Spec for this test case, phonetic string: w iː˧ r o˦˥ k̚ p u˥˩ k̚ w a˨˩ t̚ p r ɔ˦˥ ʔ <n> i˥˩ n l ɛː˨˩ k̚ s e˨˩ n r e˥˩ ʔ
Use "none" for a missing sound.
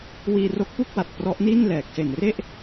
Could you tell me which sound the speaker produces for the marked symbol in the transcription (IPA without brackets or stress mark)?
n